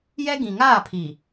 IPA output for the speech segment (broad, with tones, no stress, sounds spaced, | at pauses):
j ɛ˦ ɡ ĩ˨ ŋ aː˦˨ pʰ i˨